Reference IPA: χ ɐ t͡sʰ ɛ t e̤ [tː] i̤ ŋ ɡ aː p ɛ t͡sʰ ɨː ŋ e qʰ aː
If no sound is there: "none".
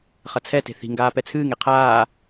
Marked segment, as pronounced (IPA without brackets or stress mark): θ